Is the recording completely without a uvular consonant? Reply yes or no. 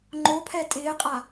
no